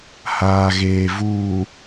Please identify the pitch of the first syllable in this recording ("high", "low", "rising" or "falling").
low